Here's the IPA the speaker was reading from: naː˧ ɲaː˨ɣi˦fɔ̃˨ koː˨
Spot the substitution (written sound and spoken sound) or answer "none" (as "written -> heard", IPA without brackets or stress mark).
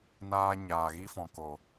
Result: none